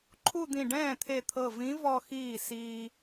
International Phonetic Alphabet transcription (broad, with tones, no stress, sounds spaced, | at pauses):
ǃʰ u˥˧ d̪ ĩ˧˩ ɖ ɛ̃ː˥˩ t̪ʰ e˧˩ t̪ʰ ɤ˧˩ v ĩ˧˥ v ɔ˥˧ x iː˥˩ s iː˧